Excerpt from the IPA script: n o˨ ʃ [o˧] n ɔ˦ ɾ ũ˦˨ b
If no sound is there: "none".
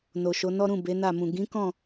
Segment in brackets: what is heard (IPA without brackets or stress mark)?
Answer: o˨˦